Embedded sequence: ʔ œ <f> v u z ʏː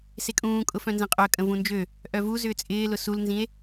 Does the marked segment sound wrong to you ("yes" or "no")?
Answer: yes